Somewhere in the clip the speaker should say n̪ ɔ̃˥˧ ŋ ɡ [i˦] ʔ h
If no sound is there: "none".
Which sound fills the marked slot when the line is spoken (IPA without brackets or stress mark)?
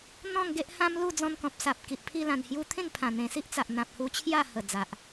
e˦